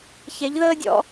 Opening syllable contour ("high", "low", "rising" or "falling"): rising